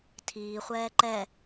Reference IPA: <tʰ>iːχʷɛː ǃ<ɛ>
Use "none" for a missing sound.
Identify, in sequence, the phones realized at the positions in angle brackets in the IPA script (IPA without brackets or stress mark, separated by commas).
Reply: tʰ, ɛ